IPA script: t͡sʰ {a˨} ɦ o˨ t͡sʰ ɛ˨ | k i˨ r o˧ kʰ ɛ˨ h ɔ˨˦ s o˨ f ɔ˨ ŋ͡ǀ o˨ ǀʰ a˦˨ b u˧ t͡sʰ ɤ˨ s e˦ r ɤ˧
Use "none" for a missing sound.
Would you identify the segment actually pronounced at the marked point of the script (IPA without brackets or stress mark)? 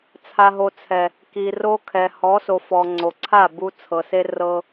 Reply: a˨